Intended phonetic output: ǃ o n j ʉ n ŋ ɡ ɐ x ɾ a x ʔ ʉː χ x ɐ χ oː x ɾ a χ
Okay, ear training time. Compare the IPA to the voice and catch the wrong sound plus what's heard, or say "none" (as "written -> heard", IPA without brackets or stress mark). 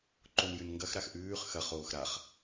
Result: none